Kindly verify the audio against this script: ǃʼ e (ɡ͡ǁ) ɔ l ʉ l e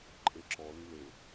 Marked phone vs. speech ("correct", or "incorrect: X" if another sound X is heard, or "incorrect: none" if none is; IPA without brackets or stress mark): incorrect: ǁ